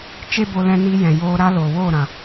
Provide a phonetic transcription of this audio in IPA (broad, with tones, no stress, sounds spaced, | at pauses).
t͡ʃ e˦ b o˧ l ɛ̃˧ n iː˧ j ɛ̃˨ j oː˧ ɾ a˦ l oː˨ w oː˦˨ ɾ ã˨